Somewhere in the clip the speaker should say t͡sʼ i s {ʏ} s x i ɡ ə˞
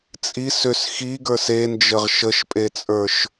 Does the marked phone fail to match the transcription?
no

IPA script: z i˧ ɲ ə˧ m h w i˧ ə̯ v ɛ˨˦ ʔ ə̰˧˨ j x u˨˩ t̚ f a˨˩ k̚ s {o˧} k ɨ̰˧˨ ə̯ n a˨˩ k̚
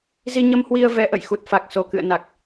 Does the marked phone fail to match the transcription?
yes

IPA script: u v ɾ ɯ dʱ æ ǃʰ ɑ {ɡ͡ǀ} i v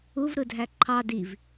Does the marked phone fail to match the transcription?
yes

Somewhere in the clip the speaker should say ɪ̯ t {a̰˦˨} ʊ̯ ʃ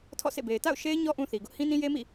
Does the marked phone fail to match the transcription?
no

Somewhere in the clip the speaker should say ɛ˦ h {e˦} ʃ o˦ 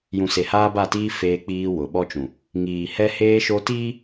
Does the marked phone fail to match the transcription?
yes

